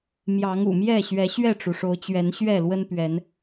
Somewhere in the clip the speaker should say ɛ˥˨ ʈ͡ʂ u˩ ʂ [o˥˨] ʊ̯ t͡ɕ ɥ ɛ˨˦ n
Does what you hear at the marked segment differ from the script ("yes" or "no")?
yes